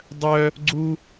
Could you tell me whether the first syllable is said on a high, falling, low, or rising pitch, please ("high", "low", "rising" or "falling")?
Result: high